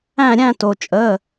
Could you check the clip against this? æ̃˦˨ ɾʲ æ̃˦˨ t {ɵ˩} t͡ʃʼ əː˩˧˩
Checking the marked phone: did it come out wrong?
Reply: yes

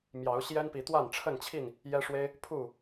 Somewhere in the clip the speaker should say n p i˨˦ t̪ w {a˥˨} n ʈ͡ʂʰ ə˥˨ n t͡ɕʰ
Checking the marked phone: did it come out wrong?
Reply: no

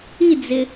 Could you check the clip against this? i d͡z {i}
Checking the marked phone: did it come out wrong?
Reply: yes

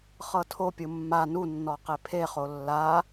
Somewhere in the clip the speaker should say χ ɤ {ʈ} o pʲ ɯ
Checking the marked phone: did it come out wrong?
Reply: yes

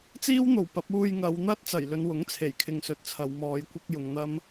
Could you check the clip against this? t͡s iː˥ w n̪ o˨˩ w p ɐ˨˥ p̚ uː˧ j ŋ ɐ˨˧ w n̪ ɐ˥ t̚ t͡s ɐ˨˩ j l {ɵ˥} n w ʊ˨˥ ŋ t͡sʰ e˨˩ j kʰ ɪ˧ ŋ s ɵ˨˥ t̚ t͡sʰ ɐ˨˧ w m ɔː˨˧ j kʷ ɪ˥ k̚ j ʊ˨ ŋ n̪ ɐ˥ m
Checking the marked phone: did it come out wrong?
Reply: yes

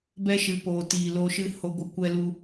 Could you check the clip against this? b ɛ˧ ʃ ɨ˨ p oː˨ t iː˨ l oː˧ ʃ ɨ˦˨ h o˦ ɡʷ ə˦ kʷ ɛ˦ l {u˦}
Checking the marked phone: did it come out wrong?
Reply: no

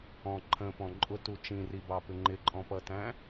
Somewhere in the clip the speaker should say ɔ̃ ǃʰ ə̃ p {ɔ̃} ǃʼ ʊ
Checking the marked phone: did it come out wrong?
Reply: no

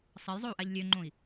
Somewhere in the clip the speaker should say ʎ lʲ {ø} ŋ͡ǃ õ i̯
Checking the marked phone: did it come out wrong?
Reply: no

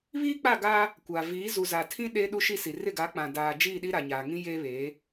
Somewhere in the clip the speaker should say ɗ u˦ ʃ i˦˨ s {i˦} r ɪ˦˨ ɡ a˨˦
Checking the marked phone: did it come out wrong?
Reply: yes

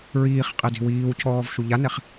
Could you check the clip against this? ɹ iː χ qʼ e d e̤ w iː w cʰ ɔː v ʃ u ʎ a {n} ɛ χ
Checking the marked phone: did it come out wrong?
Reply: no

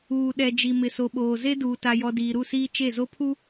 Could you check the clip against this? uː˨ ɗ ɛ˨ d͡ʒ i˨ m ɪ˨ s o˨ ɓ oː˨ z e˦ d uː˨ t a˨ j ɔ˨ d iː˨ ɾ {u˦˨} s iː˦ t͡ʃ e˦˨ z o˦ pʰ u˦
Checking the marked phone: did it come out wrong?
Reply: no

